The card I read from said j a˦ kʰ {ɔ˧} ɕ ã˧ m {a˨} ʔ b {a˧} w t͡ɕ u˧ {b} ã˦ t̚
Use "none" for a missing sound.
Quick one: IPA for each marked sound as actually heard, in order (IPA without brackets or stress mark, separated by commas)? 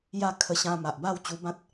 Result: ə˧, a˨, a˥˧, b